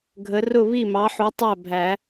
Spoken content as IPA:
ɡʱ ə˨˦ r ʊ˥˨ β i˥˨ m ɑ˨˦ ħ u˨˦ tˤ æ˥˨ bʱ æ˨˩˦

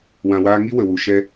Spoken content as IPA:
w ã˨ w aː˧ ŋ i˦ w ə˨ w u˨ ʃ ɛ˧

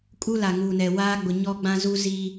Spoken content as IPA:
kʼ u˦ l a˨ ŋ uː˨ n ɛ˨ w aː˦ ɡ͡b ʊ˨ ɲ ɔ˦ ɡ͡b ã˦ z u˦ z i˦

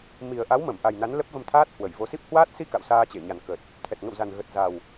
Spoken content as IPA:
m i˨˩ ə̯ ʔ a˨˦ w m ə˧˩ m ʔ a˨˩ j n a˨˦ n l ə˦˥ p̚ v ə˧ m t̪ʰ aː˦˥ t̚ h w ə˧˩ j v o˨˦ s i˦˥ p̚ h w aː˦˥ t̚ s i˧ k a̰˧˨ w s aː˧ t͡ɕ e˧˩ ɲ a˨˩ n k ə˨˩ t̚ | t̪ʰ ɛ˨˩ t̚ ŋ ə̰˧˨ w z a˨˩ n ɣ ə˨˩ t̚ z a˨˩ w

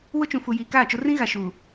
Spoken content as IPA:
w ʊ˦ t͡ʃ ũ˨ f u˨ j iː˨ k aː˦˨ t͡ʃ ʊ˦ r ĩ˦ ɣ a˨ ʃ uː˨

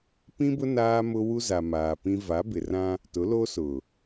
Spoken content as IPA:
p ĩ˦ b ʊ˦ n aː˦ m ʊ˦ w u˦ z a˨ m aː˨ p ĩ˦ v a˨˦ b ɪ˨ r ã˦ | t ʊ˨˦ l o˦ s ʊ˨

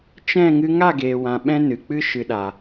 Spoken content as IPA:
t͡ʃ ɛ̃˦˨ ŋ ɨ˧ ŋ a˦˨ ɡ eː˨ w ã˨ ɓ ɛ̃˦ n ɨ˨ k͡p ɨ˦ ʃ ɨ˨ ɗ a˨

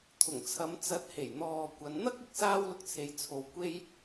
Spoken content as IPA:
t̪ʰ ʊ˨˩ ŋ t͡sʰ ɐ˨˧ m t͡s ɐ˨˥ t̚ h e˨˩ j n̪ ɔː˨ kʷ ɐ˨˧ n n̪ ɐ˥ k̚ ɪ˧ k̚ s aː˥ w l ʊ˧ k̚ t͡sʰ e˨˧ j t͡sʰ o˨ w kʷ e˥ j

